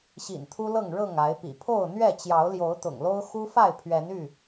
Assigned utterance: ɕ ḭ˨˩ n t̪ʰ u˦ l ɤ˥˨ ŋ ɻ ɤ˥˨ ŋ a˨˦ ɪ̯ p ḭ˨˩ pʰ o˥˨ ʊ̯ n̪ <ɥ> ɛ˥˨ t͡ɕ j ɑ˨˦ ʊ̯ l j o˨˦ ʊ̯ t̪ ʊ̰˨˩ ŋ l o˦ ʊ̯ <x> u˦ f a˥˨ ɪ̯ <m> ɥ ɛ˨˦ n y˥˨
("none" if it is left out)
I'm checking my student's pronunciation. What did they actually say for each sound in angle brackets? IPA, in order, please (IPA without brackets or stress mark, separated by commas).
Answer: ɥ, x, pʰ